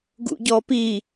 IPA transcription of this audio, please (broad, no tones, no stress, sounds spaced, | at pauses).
ɡ ṵ ɟ ɔ p i